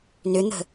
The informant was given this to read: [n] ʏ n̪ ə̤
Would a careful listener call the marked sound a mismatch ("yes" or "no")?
no